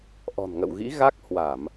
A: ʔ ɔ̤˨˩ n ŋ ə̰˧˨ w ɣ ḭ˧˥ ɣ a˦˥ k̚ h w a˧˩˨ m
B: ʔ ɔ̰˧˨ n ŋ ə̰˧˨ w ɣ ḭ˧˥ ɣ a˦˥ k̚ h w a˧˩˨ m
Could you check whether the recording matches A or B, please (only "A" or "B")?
A